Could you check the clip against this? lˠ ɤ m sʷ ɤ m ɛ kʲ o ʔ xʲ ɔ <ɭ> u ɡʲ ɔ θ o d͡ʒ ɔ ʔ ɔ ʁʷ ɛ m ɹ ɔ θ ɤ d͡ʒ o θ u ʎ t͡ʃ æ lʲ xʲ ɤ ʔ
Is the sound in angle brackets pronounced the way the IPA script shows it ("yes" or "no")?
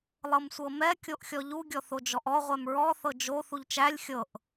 no